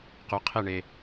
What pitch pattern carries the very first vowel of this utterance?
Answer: low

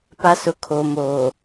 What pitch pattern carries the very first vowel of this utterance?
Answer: high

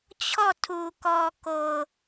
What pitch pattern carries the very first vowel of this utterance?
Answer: falling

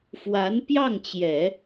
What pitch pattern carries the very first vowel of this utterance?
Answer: rising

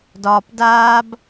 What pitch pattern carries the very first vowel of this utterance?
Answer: low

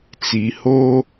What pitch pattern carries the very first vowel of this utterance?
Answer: low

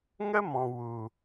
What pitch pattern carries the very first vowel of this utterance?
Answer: high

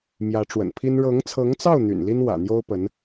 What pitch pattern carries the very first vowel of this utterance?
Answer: rising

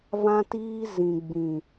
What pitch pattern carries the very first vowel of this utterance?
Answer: high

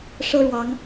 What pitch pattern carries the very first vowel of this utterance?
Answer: high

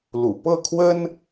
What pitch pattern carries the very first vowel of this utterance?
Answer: low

